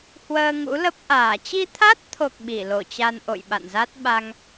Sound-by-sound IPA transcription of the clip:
h w əː˧ ŋ ṵ˧˥ l ə˦˥ p̚ ʔ aː˧˩ t͡ɕ i˧ t̪ʰ a˦˥ t̚ t̪ʰ o˨˩ k̚ ɓ i˧˩ l o˧˩ t͡ɕ a˧ n ʔ o̰˧˨ j ɓ a̰˧˨ n z a˦˥ t̚ ɓ a˧ ŋ

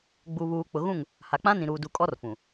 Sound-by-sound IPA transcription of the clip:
ɡ͡b u˨ β uː˨ k͡p ʊ˨ ɣ ũ˦˨ ŋ | h a˨ k͡p ã˦ n ĩ˨ ɾ uː˨ d u˨ kʼ ɔ˦ r f ũ˨

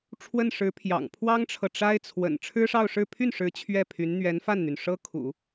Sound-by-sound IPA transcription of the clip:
ʈ͡ʂʰ w ə˥˩ n ʂ ɻ̩˧˥ pʰ j ɑ̰˨˩ ŋ pʰ w ɑ˥ ŋ ʈ͡ʂʰ ɤ˨ ʈ͡ʂ a˥ ɪ̯ t͡sʰ w ə̰˨˩ n ʈ͡ʂʰ ɻ̩˥ ʂ ɑ˥˧ ʊ̯ ʂ ɻ̩˥˧ pʰ y˥˩ n ʂ ɻ̩˧˥ t͡ɕʰ ɥ ɛ˥˩ pʰ y˧˥ n n̪ ɥ ɛ˧˥ n f a˥˩ n n̪ y˩ n ʂ ɤ˥ kʰ ṵ˨˩˦

